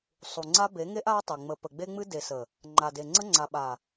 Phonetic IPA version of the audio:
sˤu˨ŋ͡ǀa˦ be˨˦ŋe˦ʔ a˦tˤe˨ ŋ͡mə˨ pə˨ɡ͡be˦ŋ͡mɨ˦ de˨sə˨ | ŋ͡ǃa˨de˨ŋ͡ǀə˦ ŋ͡ǀa˨ɓa˨

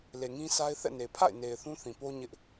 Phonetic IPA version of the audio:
le˨ŋĩ˦sa˦ɪ̯ θɛ̰˦˨ne˨ pʰa̰˦˨ɪ̯ne˨ɪ̯ θũ˦θĩ˨po˦ ɲɪ˦ʔ

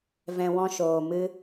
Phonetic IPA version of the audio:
vɛ̃˧ wɔ̃˦ʃoː˧mɨ˦

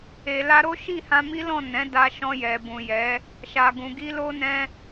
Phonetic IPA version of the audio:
e˨la˧ɾo˦ ʃi˦˨hã˧mi˦lɔ̃˦˨ nɛ̃˨˦da˧ ʃɔ̃˧jɛ˨ bũ˨jɛ˨˦ | ʃa˨ɡũ˨ɡi˧ lo˧nɛ̃˧

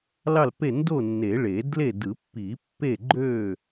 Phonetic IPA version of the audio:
lɑ˥˨lpe˥˨ ndo˥˨nːe˨˩˦ ɭe˨˩˦dle˥˨ dɯ˨˩˦pːi˨˩˦ pːe˥˨ ɡ͡ǃø˥˨

